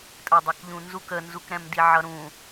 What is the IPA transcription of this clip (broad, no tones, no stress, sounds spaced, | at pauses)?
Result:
tʼ ɜ dˤ ʌ k ʎ ũ n z u k ə n z u k ɾ ɛ̃ m d i ʕ ʌ ɾ ũ